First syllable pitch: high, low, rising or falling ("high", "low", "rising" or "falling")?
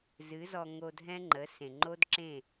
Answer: rising